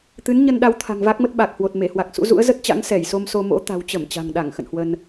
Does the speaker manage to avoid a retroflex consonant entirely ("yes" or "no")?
yes